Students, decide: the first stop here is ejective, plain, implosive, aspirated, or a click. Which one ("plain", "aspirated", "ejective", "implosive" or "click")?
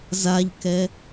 plain